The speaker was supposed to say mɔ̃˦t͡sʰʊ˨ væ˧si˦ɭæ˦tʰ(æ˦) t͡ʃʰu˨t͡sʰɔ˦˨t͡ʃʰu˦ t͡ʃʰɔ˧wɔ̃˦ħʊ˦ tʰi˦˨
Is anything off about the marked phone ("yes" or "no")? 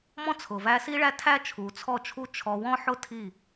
no